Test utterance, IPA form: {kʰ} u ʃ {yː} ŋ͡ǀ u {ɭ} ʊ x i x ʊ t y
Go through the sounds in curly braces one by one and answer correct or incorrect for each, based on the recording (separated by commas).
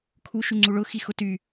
correct, incorrect, correct